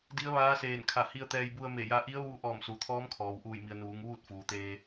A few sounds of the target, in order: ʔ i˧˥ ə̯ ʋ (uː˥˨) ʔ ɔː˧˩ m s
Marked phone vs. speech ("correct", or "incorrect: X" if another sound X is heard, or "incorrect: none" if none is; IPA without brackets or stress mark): incorrect: uː˧